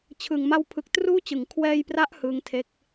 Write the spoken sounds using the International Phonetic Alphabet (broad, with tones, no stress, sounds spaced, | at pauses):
t͡ɕʰ ɯ˨˩ ŋ m a˧ w pʰ ɯ˨˩ k̚ t r uː˦˥ t͡ɕ ɯ˩˦ ŋ kʰ w ɛː˧ j p r a˦˥ ʔ h ɯ˦˥ ŋ tʰ e˦˥ k̚